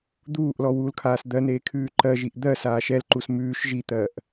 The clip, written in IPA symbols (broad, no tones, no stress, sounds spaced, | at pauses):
d̪ uː ʔ l ɔ w uː l kʰ aː s d̪ ɜ n eː kʰ ʉː ǃ ɜ ʒ i ʔ d̪ ɜ s aː ʃ ɛ l ǃ u s m ʉː ʃ ʒ i t̪ ɜ ʔ